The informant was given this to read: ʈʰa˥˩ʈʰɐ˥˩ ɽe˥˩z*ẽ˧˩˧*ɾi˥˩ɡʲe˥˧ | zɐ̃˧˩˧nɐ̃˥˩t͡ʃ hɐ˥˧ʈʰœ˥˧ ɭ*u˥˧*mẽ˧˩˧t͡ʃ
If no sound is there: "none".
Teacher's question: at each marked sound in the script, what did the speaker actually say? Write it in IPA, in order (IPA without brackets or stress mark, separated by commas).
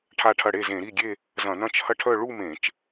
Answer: ẽ˧˩˧, u˥˧